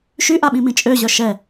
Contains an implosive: yes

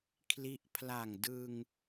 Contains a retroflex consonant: no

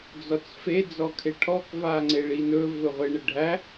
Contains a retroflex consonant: yes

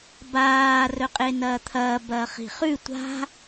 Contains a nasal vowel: no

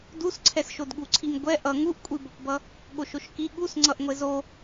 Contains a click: yes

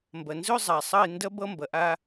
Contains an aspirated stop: no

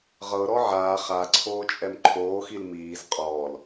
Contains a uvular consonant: yes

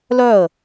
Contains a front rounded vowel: yes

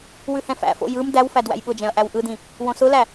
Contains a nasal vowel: yes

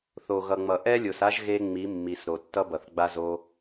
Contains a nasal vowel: no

